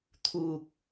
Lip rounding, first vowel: rounded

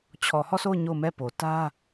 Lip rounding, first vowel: rounded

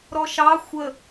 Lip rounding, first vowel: rounded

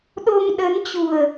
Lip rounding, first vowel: rounded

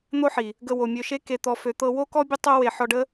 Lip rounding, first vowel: rounded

